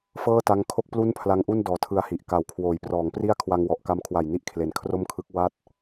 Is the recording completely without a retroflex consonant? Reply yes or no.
yes